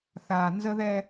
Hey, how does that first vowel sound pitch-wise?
low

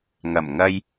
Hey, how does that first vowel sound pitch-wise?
low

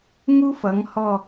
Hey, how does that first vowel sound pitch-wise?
high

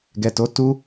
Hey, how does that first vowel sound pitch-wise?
low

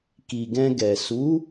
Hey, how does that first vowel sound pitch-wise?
low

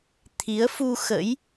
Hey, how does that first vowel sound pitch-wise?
rising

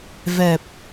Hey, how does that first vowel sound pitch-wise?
low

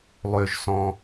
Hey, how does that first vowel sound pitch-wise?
low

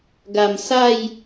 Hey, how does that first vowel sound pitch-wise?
low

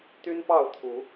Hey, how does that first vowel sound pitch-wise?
high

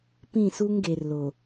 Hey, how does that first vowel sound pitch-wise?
falling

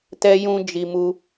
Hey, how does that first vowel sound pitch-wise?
high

